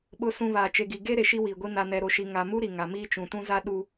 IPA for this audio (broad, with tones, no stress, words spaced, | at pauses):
ɓʊ˨sũ˨ βaː˨t͡ʃe˨ɡi˨ ɡe˦ ɾe˨ʃi˦wiː˨ɡʷi˦ na˨nɛ˨ɾo˨ʃi˨ ŋa˨mu˦ ɾi˨ŋa˨miː˦ t͡ʃũ˨tũ˦za˦ ɗu˦